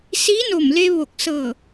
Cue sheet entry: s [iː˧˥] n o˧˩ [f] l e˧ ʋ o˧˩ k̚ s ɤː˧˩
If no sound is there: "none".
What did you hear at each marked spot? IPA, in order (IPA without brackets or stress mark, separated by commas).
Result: iː˧˥, m